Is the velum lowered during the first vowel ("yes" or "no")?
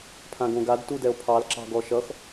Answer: yes